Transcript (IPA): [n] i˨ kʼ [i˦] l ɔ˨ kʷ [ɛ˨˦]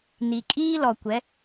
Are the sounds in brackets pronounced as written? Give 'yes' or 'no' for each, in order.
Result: yes, no, yes

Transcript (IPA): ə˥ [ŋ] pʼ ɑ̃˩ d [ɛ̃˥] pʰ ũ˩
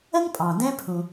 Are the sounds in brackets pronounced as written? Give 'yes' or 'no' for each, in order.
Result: yes, yes

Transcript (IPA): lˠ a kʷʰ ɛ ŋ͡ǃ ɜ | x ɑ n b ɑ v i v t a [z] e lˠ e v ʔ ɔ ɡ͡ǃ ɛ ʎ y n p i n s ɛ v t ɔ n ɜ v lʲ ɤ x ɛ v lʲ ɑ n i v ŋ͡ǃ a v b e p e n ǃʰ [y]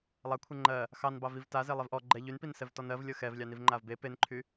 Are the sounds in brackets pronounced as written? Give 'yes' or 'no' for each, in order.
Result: yes, yes

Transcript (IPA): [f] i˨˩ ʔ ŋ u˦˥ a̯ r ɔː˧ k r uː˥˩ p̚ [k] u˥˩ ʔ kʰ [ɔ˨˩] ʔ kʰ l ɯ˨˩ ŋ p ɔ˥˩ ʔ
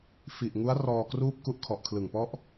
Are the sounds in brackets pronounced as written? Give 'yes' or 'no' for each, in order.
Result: yes, yes, yes

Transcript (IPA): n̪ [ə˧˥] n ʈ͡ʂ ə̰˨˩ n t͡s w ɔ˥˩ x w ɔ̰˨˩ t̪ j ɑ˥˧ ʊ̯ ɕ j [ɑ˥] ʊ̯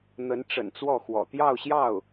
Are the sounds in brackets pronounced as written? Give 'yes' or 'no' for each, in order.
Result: yes, no

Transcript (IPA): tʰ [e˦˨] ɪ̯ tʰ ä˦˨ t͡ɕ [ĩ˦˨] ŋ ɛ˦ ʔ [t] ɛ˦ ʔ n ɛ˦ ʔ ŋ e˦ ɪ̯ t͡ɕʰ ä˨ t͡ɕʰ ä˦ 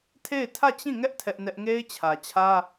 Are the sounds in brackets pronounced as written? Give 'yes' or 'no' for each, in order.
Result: yes, yes, no

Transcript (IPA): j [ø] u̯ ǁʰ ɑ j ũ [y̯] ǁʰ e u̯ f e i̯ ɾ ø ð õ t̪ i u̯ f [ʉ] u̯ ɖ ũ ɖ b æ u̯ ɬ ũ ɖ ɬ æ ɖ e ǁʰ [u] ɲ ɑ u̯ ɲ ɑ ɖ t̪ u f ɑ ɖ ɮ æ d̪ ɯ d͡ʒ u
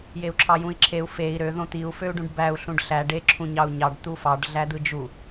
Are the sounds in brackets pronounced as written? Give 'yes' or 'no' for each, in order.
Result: no, no, no, no

